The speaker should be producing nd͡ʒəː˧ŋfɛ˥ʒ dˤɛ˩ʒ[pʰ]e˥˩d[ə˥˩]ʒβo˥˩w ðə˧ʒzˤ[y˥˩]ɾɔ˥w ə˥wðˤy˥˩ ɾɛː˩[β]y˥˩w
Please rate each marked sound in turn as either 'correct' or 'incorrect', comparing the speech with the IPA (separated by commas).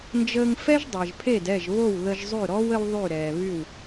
correct, incorrect, correct, correct